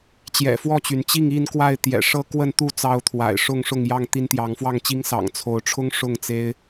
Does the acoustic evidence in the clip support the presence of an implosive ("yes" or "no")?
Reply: no